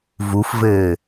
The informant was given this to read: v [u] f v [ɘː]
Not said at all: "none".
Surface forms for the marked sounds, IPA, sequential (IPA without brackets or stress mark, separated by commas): u, ɘː